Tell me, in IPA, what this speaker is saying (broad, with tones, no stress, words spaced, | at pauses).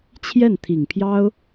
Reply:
t͡ɕʰjɛ˥˩nt̪ʰi˨˩ŋpʰjɑ˥ʊ̯